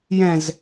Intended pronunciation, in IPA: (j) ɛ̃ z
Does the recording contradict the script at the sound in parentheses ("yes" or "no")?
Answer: no